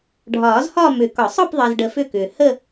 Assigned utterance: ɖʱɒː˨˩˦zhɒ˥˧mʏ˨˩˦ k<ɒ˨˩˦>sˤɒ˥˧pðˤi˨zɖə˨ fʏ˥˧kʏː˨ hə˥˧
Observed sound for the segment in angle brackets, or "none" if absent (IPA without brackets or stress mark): ɒ˨˩˦